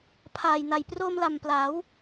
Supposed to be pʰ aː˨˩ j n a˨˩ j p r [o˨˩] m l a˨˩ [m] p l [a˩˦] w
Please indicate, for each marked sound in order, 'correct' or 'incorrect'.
incorrect: o˧, correct, correct

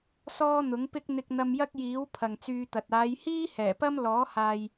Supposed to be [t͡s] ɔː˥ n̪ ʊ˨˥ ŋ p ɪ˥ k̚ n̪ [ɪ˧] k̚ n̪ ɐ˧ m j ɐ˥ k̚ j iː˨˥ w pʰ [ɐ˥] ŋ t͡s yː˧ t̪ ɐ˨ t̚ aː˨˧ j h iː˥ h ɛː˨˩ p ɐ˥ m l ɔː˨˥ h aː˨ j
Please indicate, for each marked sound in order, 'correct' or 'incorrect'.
incorrect: s, correct, incorrect: ɐ˨

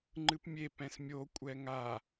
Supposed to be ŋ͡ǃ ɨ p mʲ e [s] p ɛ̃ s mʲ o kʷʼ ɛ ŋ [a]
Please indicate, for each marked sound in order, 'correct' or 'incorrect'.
incorrect: none, correct

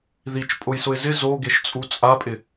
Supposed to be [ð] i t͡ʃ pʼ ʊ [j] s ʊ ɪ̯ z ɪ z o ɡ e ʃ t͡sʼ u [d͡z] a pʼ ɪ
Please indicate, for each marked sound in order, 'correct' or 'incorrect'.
correct, correct, incorrect: t͡sʼ

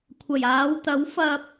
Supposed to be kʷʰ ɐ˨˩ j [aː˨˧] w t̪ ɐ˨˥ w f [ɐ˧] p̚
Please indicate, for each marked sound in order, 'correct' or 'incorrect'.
correct, correct

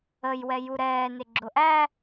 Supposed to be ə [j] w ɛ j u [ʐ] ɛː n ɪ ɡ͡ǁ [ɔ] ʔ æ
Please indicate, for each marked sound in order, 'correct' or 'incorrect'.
correct, incorrect: ɾ, incorrect: ʊ

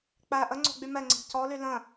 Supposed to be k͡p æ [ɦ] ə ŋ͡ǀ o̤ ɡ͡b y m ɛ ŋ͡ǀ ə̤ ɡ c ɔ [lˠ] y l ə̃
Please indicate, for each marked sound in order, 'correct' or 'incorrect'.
incorrect: ʔ, incorrect: l

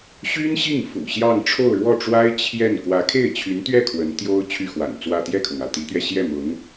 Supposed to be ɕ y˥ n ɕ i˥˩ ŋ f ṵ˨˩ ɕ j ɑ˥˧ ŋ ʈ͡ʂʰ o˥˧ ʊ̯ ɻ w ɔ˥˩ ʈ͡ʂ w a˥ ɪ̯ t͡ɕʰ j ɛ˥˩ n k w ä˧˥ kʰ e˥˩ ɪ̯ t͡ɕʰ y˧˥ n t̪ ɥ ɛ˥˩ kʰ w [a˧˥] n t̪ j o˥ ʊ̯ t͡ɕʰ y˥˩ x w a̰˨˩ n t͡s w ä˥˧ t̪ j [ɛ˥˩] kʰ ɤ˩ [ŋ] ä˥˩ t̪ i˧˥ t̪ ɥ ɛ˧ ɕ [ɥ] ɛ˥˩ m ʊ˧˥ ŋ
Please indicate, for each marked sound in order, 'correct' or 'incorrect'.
incorrect: ə˧˥, correct, correct, incorrect: j

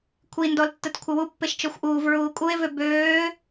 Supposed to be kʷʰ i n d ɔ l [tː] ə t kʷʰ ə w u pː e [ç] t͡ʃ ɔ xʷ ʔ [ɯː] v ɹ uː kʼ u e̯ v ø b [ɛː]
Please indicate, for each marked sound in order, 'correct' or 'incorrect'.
correct, incorrect: ʃ, incorrect: uː, incorrect: øː

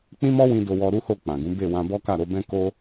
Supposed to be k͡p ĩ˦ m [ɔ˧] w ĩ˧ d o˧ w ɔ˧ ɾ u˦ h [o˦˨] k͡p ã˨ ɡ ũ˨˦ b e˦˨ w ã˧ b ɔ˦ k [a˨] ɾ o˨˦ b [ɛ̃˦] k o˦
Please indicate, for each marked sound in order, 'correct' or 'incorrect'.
incorrect: ɔ˦, correct, incorrect: a˦˨, correct

